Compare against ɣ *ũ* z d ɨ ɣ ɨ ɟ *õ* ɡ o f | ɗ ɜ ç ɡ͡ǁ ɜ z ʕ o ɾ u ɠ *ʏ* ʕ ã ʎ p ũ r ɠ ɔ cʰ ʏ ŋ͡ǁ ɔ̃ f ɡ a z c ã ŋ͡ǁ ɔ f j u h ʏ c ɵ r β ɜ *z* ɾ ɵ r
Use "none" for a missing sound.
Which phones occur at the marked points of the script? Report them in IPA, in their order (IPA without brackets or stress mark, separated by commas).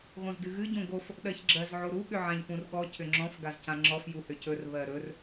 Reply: õ, õ, ʏ, none